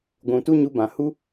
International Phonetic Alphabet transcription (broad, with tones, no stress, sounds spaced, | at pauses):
ɡʷ ũ˨ t u˦ ɲ u˧ b ã˨ h u˦